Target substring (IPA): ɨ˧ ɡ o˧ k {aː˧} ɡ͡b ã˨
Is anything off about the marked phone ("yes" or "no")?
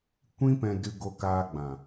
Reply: no